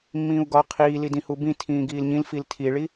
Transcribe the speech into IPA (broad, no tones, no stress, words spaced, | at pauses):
mːĩːu̯ɡɒ qʰiːlidĩ hubĩ tʰĩːɡiːlɲĩl filtʰiɭi